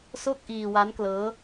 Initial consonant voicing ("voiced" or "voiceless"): voiceless